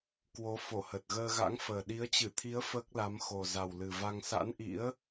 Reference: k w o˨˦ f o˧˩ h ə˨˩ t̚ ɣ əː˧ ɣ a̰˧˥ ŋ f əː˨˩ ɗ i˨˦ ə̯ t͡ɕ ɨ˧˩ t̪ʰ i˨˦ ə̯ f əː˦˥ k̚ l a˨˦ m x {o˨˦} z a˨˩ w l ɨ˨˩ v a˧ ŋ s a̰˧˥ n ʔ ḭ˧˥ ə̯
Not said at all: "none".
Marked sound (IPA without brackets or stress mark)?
o˨˩